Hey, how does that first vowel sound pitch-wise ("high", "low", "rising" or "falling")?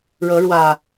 rising